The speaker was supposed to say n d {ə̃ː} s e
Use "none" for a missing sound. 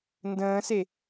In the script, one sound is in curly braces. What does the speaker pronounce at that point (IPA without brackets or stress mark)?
ə̃ː